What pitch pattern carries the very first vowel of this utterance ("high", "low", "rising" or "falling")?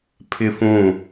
high